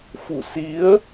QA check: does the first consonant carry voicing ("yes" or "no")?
no